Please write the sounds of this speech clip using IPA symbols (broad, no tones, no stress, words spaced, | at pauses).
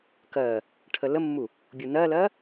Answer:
kɜ | ʈʰələmːu | bʲunɜlɜ